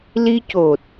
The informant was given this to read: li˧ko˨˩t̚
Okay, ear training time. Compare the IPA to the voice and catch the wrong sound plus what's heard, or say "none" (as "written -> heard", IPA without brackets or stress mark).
k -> c